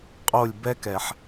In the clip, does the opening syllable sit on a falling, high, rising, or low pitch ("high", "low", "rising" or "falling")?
falling